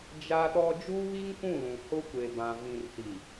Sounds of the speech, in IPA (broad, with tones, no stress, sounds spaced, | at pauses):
d͡ʒ a˦ ɗ ɔ˦ d͡ʒ uː˦ β i˦ ŋ kʷ ũ˦˨ l ũ˨ h ʊ˦ kʷ e˨ b ã˨ v ĩ˨ r s i˨